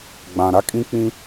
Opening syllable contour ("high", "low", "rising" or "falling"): low